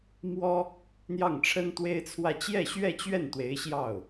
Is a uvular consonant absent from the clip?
yes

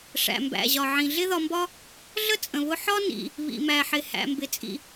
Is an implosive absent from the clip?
yes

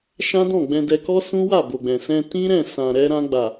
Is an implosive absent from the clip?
yes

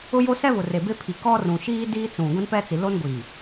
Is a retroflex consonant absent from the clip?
yes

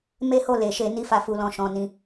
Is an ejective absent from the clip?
yes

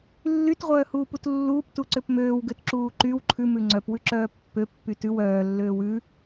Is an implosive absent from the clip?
yes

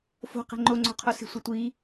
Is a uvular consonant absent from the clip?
no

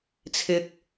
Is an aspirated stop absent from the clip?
no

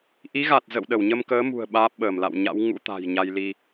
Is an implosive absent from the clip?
no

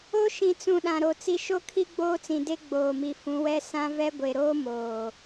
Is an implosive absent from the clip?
no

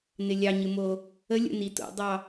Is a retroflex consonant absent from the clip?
yes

